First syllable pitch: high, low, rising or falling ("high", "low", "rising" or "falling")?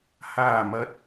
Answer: low